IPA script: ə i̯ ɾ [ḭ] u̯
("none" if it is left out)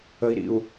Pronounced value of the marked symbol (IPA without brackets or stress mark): ḭ